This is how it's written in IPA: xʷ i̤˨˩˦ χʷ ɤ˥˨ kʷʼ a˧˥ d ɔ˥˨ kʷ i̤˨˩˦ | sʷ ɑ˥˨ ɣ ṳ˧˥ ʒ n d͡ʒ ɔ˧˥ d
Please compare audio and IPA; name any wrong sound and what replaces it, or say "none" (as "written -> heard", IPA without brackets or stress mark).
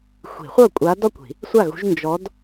ɑ˥˨ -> a˥˨